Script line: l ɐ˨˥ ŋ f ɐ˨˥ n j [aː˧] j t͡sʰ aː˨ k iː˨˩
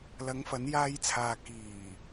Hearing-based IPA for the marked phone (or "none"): aː˧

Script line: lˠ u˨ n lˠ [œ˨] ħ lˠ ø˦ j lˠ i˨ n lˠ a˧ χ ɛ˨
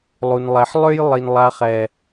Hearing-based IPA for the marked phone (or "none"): ɛ˨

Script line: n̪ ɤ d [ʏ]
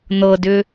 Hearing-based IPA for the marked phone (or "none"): ʏ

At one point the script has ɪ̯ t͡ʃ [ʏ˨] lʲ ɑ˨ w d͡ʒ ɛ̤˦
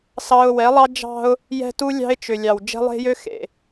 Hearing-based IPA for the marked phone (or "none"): ʏ˨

